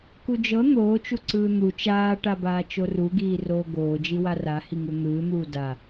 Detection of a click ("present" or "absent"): present